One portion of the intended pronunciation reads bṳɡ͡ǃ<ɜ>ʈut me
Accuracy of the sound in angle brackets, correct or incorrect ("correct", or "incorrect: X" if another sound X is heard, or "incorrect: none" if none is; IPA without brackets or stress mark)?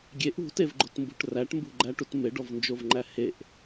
incorrect: æ